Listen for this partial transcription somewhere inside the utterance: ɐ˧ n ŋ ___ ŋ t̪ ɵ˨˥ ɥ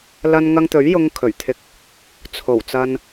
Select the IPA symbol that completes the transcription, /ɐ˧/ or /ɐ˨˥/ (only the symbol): ɐ˧